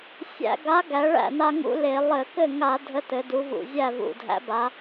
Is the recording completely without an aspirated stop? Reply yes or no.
yes